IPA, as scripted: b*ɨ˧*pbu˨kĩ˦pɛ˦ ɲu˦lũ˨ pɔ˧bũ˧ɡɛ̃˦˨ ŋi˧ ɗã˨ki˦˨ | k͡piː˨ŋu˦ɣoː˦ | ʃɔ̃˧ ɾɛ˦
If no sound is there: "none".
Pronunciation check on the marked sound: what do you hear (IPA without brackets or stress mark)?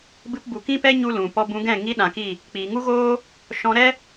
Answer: ɨ˧